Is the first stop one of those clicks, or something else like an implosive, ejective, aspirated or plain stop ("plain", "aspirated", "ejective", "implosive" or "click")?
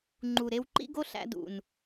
click